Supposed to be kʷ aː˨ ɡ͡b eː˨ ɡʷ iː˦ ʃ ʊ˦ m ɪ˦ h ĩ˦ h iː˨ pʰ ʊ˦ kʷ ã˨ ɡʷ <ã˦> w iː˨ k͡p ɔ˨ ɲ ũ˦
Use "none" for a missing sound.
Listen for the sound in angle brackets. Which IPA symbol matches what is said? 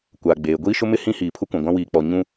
ã˦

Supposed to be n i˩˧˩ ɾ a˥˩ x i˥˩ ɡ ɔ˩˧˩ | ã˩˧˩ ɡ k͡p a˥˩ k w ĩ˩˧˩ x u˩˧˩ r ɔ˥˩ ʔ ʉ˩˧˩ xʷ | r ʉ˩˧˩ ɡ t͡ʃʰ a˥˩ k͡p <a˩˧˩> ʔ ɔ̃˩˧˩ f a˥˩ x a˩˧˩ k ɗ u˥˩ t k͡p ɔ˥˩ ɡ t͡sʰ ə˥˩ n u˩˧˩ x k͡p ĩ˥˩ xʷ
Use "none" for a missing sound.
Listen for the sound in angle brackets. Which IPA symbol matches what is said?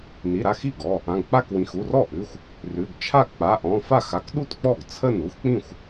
a˩˧˩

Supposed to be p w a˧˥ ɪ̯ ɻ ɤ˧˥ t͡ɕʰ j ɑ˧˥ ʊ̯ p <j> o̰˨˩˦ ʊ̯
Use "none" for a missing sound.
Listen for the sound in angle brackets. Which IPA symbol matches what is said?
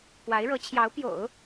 j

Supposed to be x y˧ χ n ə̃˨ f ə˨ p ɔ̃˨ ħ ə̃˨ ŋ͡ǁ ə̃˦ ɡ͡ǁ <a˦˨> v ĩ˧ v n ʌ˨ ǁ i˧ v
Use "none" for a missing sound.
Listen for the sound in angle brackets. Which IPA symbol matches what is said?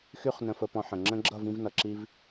ʌ˦˨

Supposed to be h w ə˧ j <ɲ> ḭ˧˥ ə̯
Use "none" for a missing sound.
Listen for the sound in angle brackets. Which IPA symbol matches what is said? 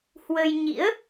ɲ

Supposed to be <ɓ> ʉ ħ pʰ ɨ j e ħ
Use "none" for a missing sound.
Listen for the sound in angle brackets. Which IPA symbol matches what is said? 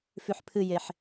f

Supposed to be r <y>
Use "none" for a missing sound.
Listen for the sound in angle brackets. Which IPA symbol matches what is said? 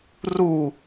u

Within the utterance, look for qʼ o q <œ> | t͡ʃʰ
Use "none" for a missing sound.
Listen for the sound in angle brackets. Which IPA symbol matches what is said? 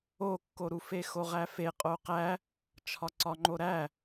æ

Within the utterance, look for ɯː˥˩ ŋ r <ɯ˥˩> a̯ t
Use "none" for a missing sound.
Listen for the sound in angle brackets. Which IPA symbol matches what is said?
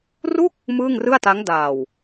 ɯ˥˩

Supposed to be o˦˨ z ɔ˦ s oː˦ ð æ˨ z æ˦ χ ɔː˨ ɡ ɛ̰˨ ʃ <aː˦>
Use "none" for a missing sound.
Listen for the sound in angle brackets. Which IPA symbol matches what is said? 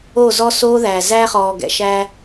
æː˦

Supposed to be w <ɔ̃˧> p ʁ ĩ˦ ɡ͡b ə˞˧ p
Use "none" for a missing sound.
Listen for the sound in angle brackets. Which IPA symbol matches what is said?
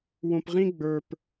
õ˧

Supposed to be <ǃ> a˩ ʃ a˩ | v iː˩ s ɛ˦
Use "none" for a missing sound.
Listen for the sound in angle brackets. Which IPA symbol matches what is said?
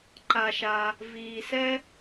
ǃ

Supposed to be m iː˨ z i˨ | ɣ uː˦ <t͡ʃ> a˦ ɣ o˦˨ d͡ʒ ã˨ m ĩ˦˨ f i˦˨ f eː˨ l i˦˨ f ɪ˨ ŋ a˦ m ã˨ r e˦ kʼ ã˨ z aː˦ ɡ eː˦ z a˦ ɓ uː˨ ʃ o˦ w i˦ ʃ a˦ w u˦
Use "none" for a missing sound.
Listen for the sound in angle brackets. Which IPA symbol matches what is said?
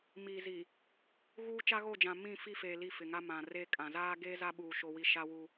t͡ʃ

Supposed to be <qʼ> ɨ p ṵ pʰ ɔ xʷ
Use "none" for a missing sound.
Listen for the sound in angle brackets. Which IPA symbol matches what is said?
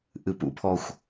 ʔ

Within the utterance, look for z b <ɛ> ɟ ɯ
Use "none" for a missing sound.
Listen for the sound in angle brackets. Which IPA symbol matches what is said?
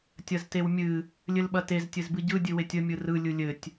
ɨ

